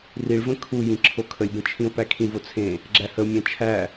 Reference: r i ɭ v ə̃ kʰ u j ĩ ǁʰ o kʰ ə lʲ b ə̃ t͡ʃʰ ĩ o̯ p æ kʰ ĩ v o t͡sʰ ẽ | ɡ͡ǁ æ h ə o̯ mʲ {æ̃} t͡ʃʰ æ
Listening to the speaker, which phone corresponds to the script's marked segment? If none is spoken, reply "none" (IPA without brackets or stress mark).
æ̃